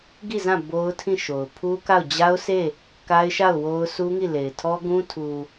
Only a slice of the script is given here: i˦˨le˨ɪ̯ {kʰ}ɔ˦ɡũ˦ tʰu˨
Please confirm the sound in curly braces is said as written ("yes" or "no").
no